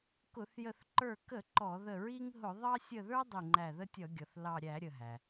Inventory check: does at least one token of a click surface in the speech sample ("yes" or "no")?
yes